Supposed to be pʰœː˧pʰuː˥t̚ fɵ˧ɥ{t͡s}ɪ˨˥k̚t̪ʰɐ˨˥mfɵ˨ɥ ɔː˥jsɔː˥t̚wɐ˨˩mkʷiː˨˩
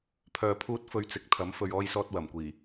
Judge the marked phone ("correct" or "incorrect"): correct